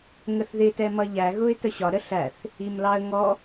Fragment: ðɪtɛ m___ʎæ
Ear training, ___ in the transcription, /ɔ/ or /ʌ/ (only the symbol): ʌ